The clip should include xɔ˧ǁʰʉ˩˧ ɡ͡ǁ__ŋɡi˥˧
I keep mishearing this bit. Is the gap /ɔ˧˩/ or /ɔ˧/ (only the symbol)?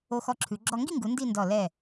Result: ɔ˧